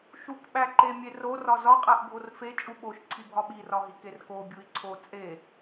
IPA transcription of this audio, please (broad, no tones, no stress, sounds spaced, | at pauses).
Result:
ʃ u k ɓ æ ǃ e mʲ e r o r ɒ z ɒ qʼ æ ʔ bʱ o r f e t͡ʃʼ u ɓ o ʃ ǀʰ i bʱ ɒ ɓ i r ɒ ɦ i k e r k o bʲ u i̯ ǀʰ o t͡sʼ e